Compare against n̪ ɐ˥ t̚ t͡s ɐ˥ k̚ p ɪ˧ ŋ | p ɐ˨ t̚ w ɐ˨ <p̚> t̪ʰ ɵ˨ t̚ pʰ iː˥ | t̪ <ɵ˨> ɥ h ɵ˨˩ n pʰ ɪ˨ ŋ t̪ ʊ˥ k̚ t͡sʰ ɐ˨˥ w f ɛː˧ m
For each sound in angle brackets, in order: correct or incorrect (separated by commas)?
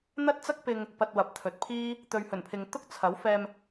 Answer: correct, correct